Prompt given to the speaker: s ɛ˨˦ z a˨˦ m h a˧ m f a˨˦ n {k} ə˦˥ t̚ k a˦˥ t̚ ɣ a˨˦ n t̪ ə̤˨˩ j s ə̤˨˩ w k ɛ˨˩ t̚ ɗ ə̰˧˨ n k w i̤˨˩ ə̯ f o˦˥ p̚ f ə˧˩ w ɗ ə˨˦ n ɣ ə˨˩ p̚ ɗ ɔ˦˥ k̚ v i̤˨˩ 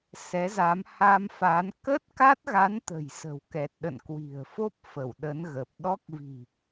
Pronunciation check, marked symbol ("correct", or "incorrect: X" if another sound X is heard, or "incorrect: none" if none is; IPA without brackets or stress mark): correct